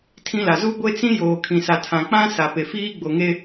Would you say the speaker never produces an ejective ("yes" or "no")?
yes